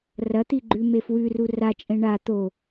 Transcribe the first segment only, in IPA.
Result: r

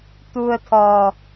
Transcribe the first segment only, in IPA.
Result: t̪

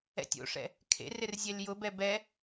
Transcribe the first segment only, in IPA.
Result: ɛ̰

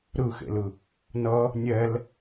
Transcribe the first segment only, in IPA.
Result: ɾ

